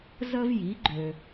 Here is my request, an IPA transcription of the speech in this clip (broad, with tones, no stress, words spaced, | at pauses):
zə˥vji˩˥ɡ͡ǃø˨